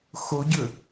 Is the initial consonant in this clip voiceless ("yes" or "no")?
yes